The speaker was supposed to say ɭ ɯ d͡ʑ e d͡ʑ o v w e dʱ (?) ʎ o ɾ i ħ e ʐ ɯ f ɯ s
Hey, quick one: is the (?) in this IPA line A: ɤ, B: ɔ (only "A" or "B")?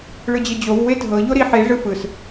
A